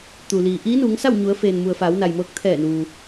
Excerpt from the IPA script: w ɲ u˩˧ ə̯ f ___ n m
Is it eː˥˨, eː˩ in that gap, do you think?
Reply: eː˩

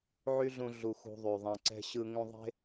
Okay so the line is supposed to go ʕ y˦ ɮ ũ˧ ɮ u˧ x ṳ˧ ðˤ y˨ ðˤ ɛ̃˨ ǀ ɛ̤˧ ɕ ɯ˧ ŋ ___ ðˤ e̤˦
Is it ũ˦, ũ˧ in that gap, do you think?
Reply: ũ˧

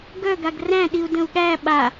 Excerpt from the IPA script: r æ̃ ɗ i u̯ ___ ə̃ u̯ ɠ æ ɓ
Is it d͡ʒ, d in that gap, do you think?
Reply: d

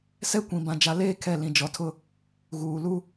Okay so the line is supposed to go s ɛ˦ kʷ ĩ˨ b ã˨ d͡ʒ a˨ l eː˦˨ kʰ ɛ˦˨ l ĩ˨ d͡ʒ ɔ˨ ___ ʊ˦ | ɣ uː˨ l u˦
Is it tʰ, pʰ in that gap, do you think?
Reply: tʰ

